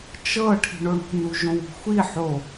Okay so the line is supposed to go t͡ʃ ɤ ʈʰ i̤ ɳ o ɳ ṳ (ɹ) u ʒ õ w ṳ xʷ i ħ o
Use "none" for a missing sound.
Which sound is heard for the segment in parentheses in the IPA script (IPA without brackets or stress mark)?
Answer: n